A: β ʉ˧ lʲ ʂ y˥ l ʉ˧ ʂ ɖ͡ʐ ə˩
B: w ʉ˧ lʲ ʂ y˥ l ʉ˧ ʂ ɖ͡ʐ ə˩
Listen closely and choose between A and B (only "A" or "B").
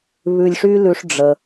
A